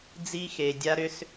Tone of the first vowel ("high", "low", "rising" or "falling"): high